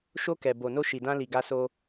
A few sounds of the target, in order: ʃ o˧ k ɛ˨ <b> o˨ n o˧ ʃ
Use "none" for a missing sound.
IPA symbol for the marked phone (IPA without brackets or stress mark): b